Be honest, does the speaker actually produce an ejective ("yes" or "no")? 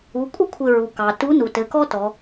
yes